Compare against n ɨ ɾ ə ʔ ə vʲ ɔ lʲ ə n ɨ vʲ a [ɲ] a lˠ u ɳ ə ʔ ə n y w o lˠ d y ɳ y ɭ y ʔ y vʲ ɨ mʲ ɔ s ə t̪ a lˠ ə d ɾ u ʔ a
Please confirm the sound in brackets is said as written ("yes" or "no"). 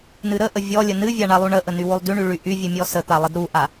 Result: no